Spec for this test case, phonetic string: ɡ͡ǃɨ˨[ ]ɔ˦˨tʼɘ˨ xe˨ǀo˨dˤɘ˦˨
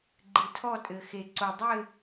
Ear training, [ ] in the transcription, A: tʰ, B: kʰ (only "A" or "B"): A